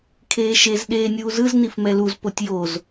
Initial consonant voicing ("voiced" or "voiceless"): voiceless